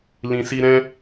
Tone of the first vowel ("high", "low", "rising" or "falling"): low